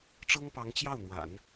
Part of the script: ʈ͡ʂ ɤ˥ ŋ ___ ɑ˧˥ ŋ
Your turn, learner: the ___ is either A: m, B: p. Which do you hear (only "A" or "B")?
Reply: B